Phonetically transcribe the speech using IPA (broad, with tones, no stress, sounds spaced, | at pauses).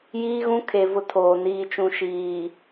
j iː˦ ɣ ũ˦ kʰ e˨ v ʊ˦ tʰ oː˨ n iː˨ t͡ʃ ũ˨ ʃ iː˨